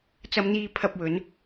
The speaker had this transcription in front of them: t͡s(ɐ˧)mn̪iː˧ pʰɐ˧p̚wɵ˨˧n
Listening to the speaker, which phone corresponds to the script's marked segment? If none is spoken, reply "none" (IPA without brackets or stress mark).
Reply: ɐ˧